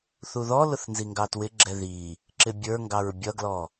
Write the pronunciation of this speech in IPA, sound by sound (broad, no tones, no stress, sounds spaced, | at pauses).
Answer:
θ u ð ɔ l ʊ θ n z i ŋ ɡ ɑ t w ɪ ɡ͡ǁ ɛ ð i | ǁ ɪ bʲ ə˞ ŋ ɡ ɑ ɹ bʲ ʌ ɡ l ɔ